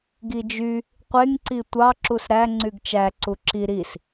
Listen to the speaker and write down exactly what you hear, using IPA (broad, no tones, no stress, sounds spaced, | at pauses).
ɡ i d͡ʒ y | qʷ e ŋ ǀ i tʷ ɑ ǁ u s ɾ æ ŋ͡ǀ y ɡ t͡ʃ æ ǀ u ǁ i ɾ i s